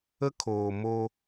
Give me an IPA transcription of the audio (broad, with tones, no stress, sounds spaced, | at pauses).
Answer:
ə˦ kʰ oː˨ m o˦